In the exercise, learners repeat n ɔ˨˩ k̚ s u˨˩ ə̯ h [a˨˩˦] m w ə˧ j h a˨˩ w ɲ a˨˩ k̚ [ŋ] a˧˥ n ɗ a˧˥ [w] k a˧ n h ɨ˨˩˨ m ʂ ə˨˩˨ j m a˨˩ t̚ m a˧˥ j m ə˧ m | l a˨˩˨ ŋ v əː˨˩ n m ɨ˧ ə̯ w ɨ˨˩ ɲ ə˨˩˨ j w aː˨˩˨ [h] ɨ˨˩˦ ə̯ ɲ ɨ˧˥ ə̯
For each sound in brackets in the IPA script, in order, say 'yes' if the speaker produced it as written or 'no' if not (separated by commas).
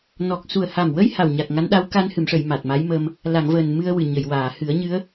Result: no, yes, yes, yes